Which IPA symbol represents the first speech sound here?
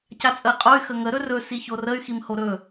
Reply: c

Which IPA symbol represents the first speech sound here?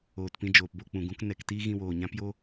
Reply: oː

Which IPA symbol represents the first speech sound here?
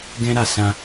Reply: ɡ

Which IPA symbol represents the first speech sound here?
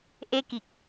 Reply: ʔ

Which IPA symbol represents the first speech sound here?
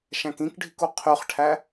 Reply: ʃ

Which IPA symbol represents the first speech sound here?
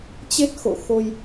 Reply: t͡ɕ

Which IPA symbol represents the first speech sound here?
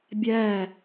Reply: bʲ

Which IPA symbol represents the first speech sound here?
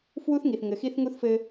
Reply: f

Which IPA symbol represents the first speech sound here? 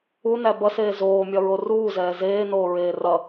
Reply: u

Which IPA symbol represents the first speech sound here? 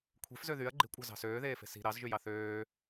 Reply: kʷʰ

